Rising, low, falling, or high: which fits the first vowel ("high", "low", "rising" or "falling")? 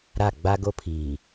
falling